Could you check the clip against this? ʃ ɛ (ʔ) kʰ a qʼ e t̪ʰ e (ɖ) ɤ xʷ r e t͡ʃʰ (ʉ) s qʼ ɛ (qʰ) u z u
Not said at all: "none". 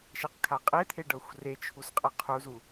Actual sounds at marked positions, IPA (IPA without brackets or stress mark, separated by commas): q, ɖ, u, qʰ